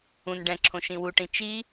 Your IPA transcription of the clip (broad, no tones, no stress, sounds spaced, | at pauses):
ũ n ɖ ɛ̃ ǁʰ õ ʃ ĩ w u ʈ ĩ t͡ʃ i